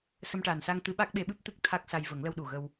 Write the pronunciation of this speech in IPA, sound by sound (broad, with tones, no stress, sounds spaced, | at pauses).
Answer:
s ə˧ m ʈ aː˨˩ n s a˧ ŋ t̪ ɨ˧˥ ɓ a˦˥ k̚ ɓ e˧˥ ɓ ɨ˦˥ p̚ t̪ ɨ˦˥ k̚ t̪ʰ a˦˥ k̚ s a˧ j v ə˨˩˦ ŋ l ə˧ w ɗ u˨˩ ɣ ə˧ w